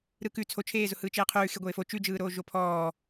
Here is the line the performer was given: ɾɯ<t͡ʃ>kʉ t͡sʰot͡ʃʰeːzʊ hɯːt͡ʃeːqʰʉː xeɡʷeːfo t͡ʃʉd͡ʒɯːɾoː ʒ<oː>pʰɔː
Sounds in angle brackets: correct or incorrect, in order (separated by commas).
incorrect, incorrect